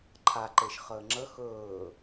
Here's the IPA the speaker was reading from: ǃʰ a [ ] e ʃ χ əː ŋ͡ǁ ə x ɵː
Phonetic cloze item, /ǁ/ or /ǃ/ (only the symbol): ǃ